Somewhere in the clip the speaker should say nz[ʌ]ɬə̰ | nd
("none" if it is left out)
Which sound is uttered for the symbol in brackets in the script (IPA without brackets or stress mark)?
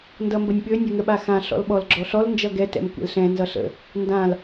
ʌ